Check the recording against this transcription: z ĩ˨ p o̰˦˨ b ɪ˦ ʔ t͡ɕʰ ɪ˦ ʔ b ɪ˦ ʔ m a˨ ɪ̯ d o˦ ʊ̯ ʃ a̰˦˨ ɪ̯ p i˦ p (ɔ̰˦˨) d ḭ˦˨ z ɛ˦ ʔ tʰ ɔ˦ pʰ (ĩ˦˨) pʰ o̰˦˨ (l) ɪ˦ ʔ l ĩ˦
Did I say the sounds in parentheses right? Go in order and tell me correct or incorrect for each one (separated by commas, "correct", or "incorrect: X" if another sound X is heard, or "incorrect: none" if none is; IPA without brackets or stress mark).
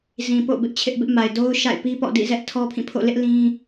correct, correct, correct